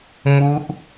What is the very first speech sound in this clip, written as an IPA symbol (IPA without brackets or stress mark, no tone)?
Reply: m